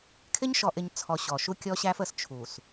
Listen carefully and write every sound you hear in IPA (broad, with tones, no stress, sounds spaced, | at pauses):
kʰ ɪ˦ ɲ ʃ ɔ˨ ʔ ɪ˨ ɲ t͡sʰ ɔ˨ ɕ ɔ˨ ʃ u˦ kʲ ɔ˦ ɕ æ˦ f ə˨ s t͡ʃʰ u˨ s